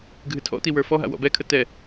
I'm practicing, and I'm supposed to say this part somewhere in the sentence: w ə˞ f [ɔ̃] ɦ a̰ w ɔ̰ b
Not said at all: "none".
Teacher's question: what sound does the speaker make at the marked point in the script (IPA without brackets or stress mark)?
ɔ